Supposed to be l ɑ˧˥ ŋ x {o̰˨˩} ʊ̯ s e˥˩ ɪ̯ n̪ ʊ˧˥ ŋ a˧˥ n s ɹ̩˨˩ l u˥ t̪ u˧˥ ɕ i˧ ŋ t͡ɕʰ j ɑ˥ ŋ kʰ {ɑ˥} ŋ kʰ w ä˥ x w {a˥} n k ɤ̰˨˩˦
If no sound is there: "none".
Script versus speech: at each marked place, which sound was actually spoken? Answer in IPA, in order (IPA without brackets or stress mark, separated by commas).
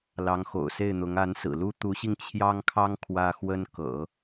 o̰˨˩, ɑ˥, ə˥